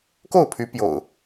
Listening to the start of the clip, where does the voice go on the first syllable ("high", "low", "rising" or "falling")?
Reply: falling